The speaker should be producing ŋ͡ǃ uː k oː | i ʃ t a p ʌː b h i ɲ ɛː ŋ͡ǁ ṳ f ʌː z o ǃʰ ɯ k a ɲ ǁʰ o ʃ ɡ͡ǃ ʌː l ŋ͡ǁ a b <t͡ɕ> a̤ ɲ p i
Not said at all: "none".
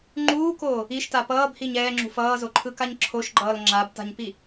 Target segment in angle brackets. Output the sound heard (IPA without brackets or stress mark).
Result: t